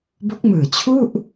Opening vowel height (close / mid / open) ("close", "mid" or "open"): mid